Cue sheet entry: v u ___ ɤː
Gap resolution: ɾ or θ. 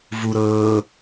ɾ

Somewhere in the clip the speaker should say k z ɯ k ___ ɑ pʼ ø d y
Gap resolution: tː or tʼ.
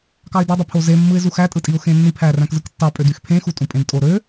tː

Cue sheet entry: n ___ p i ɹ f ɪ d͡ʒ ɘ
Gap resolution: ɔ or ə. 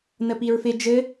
ə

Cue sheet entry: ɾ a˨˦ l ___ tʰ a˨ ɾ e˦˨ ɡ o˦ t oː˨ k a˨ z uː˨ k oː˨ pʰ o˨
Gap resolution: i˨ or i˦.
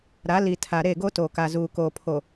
i˨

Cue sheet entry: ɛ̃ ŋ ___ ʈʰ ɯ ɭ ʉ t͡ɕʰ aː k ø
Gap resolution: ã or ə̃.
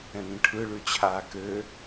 ə̃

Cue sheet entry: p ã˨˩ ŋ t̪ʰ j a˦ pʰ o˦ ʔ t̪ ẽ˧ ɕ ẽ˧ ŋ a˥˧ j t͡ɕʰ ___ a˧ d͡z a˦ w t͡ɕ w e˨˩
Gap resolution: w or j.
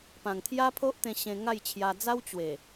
j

